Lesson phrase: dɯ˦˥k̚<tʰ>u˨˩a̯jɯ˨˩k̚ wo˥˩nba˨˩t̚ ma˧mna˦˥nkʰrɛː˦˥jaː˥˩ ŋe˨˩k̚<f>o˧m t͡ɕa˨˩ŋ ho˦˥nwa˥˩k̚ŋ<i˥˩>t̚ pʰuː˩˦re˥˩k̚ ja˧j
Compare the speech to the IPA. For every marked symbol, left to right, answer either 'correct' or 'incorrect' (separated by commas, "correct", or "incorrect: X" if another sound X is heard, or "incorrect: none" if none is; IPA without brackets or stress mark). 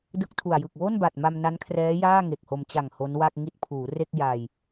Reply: correct, incorrect: h, correct